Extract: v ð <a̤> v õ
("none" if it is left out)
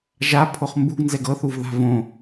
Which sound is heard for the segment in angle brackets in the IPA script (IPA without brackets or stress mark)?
a̤